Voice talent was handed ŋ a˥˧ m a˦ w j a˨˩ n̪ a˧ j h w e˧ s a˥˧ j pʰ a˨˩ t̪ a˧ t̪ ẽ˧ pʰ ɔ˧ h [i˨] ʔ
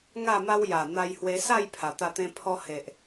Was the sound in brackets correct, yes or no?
no